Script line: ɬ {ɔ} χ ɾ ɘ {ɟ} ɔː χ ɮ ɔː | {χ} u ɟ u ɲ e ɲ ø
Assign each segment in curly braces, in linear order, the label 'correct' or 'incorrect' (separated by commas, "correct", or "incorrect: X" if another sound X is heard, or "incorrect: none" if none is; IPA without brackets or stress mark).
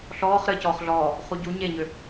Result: incorrect: ɔː, incorrect: c, correct